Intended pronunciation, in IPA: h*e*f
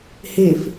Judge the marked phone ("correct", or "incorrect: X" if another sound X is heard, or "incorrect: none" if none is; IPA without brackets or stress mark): correct